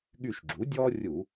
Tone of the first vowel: falling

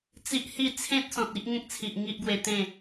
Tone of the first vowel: high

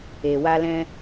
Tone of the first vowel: low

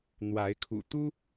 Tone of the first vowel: rising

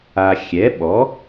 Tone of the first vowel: low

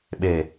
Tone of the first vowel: low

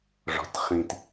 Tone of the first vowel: low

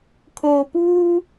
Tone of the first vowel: low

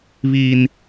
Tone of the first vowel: high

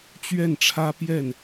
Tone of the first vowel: falling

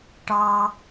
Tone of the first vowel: high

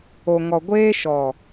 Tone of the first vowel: low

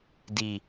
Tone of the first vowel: low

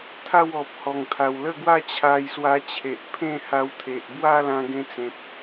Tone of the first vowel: falling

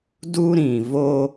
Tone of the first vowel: high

